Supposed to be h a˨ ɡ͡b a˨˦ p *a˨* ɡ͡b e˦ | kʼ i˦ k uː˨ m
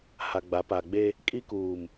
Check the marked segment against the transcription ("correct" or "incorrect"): correct